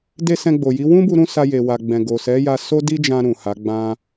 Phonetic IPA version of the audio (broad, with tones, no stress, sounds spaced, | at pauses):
d e˧ s ɛ̃˧ ɡ͡b o˨ j i˨˦ w ũ˦ b u˧ ɾ ũ˧ s a˧ j e˨ w a˨ ɡ͡b ɛ̃˨ ɡ o˨ s ɛ˨˦ j a˧ s o˦ d i˦ d͡ʒ ã˧ ɾ ũ˨ h a˨˦ ɡ͡b ã˧